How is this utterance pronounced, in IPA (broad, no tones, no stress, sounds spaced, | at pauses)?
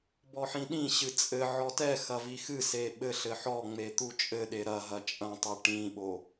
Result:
b ɔ ħ ĩ ɗ ĩ ɕ ɨ t͡sʼ ɘ ʕ ɔ t ɛ x ɐ v i x ɨ s e ɓ ɘ ɬ ɘ ħ ɔ ŋ͡m e t̪ u t͡ʃʼ ɘ ɗ e ɾ ɐ ɦ ɐ t͡ʃʼ ɐ̃ tˤ ɨ ʈ ĩ ɓ o